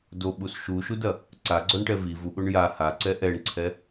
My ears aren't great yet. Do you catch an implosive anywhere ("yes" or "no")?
yes